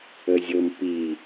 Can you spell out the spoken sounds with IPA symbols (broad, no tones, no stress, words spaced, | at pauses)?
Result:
əzʲɤmpi